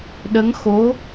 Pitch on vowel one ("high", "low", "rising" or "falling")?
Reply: rising